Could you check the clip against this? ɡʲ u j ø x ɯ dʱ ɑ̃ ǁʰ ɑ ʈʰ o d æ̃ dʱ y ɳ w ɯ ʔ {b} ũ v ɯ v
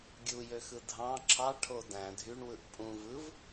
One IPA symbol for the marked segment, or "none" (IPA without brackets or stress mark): pʼ